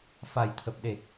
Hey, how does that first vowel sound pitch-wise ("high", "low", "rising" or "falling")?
low